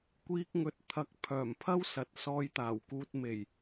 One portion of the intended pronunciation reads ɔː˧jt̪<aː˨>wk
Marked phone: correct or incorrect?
incorrect